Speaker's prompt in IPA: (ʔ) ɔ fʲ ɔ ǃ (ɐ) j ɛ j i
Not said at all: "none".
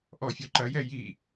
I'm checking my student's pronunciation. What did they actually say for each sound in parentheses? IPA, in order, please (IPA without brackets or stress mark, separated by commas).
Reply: ʔ, ɐ